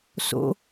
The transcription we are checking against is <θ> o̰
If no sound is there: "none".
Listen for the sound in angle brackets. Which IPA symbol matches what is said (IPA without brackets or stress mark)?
s